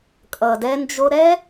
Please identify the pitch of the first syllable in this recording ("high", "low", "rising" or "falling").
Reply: low